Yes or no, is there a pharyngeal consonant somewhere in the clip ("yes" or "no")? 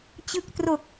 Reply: no